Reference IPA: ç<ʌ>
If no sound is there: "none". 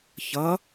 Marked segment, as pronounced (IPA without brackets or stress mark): ʌ